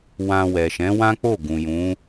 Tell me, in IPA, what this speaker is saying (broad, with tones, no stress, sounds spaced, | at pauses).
w ã˧ w ɛ˨ ʃ ɛ̃˨˦ w ã˦ k͡p o˦˨ ɡ ũ˨ j ũ˨˦